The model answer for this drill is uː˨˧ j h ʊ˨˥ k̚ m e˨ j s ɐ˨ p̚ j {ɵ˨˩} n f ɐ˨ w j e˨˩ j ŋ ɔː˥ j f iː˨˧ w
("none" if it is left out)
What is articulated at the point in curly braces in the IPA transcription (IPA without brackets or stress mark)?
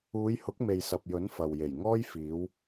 ɵ˨˥